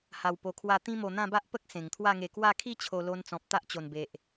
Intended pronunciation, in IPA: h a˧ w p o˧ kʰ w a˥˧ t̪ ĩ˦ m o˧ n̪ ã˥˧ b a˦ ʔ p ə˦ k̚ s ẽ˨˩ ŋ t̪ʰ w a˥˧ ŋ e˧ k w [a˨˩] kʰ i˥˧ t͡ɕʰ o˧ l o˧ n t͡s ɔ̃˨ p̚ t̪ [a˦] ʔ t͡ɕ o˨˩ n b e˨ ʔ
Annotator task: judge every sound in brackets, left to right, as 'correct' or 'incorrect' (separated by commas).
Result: incorrect, correct